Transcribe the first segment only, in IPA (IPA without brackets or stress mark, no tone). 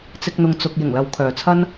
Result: t͡s